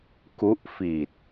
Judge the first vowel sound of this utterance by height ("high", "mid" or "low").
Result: high